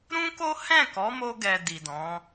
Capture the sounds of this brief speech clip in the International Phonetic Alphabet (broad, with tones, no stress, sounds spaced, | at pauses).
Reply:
ɾ ũ˦ k o˦ h ɛ̃˦˨ k ɔ˨˦ m o˧ ɡ ɛ˨ d i˨ d ɔ̃˨˦